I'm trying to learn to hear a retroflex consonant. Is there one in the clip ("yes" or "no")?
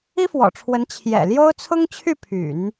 yes